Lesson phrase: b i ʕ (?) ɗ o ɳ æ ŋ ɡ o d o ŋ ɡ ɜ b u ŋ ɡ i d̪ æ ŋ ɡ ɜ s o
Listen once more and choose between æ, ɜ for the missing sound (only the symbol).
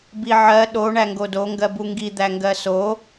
ɜ